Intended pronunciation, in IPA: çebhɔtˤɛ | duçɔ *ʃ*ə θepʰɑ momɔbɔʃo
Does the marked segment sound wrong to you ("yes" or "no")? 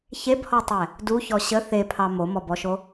yes